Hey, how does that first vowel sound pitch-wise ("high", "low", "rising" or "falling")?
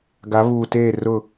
rising